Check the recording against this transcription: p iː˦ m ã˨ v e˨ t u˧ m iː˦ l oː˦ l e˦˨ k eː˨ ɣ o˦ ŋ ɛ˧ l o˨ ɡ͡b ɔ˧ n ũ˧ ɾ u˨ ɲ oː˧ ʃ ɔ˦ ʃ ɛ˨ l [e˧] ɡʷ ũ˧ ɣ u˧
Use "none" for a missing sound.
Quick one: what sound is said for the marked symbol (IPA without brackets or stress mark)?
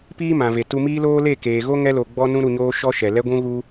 ɛ˧